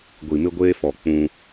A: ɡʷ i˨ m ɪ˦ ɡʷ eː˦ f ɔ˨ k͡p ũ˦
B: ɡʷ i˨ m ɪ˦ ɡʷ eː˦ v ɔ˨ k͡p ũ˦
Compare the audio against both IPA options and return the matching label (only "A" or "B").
A